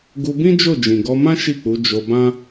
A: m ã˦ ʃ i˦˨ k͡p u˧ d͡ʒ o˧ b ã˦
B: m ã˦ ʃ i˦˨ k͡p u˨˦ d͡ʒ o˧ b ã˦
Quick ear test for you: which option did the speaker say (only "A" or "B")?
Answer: B